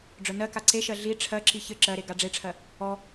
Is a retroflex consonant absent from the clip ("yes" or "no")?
no